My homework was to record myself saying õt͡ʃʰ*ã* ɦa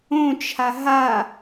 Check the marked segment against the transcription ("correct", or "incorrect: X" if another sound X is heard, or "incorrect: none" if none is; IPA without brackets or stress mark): incorrect: a